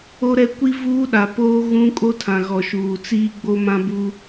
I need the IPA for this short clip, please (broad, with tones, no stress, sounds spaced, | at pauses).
o˦ ɾ ɛ˦ kʷ i˦ v uː˦ ɗ a˨ p oː˦ ɣ ũ˦ kʼ o˦ tʰ ã˨ ɣ ɔ˨ ʃ uː˨ t͡s iː˦ ɡ͡b o˦ m ã˦ b uː˦